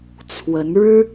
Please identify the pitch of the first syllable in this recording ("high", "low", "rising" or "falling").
rising